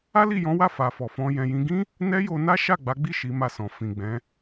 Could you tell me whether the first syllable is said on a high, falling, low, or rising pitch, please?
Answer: high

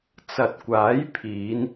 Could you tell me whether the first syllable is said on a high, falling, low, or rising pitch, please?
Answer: low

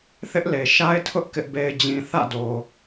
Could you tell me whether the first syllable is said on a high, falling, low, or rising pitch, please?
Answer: high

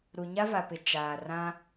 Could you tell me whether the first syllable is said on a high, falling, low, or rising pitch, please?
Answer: low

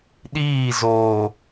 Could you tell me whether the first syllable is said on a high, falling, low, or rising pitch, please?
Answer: falling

